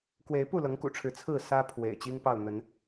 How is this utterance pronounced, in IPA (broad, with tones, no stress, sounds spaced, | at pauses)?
k w e˨˦ ɪ̯ p u˥˨ l ɤ˨˦ ŋ k ṵ˨˩ ʈ͡ʂʰ ɻ̩˨˦ t͡sʰ ɹ̩˥˨ s ä˦ pʰ w ḛ˨˩ ɪ̯ t͡ɕ i˦ ŋ p ɑ˥˨ ʊ̯ n̪ ə˨˦ n